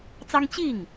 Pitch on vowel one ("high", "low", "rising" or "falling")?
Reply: high